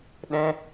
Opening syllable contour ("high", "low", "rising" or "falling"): high